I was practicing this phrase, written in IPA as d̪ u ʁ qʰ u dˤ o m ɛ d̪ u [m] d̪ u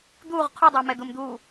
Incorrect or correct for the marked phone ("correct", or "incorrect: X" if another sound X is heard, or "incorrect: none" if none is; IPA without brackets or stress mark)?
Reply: correct